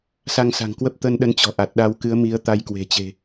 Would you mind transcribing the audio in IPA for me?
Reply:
s a˧ ŋ s a̤˨˩ ŋ k w ə˦˥ p̚ t̪ ə˧ n ɗ ə˨˦ n t͡ɕ ɔ̤˨˩ ʔ a˨˩ t̚ ɗ a˧ w k ɨ˨˦ ə̯ m i˨˦ ə̯ t̪ a˧ j k w e̤˨˩ t͡ɕ e̤˨˩

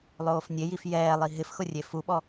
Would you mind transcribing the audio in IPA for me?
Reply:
lˠ oː f nʲ e j i f j ɛː lˠ i ɦ ɪ f x ʊ rʲ e f u ɓ ɔ

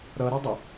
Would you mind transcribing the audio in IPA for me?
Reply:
ɾ ʌ ɾ ɔ dˤ ə

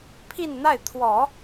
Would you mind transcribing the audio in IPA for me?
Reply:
pʰ i˥˧ n n̪ a˥˩ ɪ̯ t̪ʰ w ɔ˨˩˦

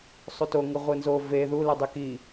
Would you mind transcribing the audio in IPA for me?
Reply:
sˤ u t o ŋ ɯ ʁʷ ɯ n z o v e ð u l ɯ dˤ e k i

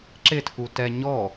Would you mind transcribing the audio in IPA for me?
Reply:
ǁ ɪ tʰ u t ɛ ɲ ɔ

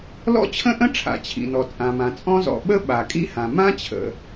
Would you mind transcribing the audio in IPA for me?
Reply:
l ɔ̰˥ t͡ɕʰ ə̃˥ ʔ ə̃˥ ʈ͡ʂʰ a̰˩ t͡ɕʰ ḭ˩ n ɔ˩ t͡sʼ ã˩ m ã˩ t͡sʼ ɔ̃˥ z ɔ̰˩ ɓ ə˥ ɓ a˩ kʼ ḭ˥ h ã˩ m ã˥ t͡ɕʰ ə̰˩

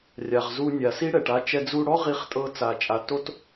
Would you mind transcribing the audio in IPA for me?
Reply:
rʲ a˩ ʁ z u˧ nʲ a˩ s i˥ ɽ ɛ˩ ʈ a˧ t͡ʃ ɛ˧ d͡z u˧ ɽ ɔ˥ ʁ i˧ χ tʼ ɤ˧ t͡s a˩ t͡ʃʼ a˩ t o˥ t

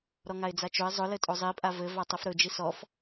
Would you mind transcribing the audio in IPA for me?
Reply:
ɾ ɔ ŋ a ɪ̯ d͡z a t͡ʃ ɵ ɪ̯ zˤ ʊ l ɘ tʼ o zˤ i pʼ a v ɘ v a tˤ ɵ f ɾ ɵ d͡ʒ i s ɔ f

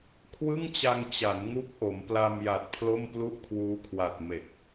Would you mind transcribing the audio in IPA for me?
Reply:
kʰ w ɯ˥˩ ŋ t͡ɕ a˧ ŋ t͡ɕ a˩˦ n ŋ u˦˥ k̚ ʔ o˩˦ m p l a˧ m j a˨˩ t̚ pʰ l o˥˩ m p l u˥˩ ʔ kʰ w uː˦˥ kʰ w a˨˩ t̚ m e˨˩ k̚

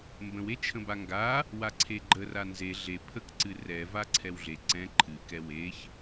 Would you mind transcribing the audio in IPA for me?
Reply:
m b ə̃ w e t͡ʃʰ ə̃ b a ŋ ɡ a | w a ǀʰ e ɡ͡ǃ ə r a n z e ɮ e pʰ ə k ǀ ɨ r ɛ v a ǀʰ ɛ w ɮ e ǀ ɛ̃ ǃʰ ɨ k ɛ w e ç

